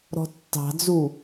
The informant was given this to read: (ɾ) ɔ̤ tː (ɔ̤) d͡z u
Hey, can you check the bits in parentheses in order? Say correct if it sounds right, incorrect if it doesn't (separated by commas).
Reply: correct, incorrect